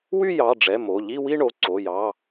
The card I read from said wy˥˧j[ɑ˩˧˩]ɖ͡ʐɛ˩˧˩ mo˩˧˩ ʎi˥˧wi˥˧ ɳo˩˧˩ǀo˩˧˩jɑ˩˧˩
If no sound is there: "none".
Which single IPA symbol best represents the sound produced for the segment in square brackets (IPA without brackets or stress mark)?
ɑ˩˧˩